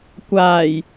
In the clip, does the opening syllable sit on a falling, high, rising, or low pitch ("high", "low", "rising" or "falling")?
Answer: low